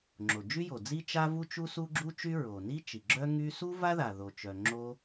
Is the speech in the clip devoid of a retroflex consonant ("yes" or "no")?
yes